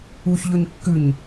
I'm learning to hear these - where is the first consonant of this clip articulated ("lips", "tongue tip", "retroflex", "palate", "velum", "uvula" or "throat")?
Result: palate